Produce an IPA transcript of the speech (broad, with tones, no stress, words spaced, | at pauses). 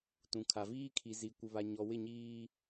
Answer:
tũ˨kʰa˨viː˦ kʰi˨zi˨ kʷɪ˨βa˨ ɲɔ˨wɪ˦˨ ɲiː˦